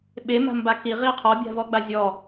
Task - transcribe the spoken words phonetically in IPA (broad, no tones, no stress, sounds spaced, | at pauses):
ɓ e m a̤ m b a k i ʁ i qʰ ɔ bʲ a̤ v ɔ ɡ͡b a zʲ ɔ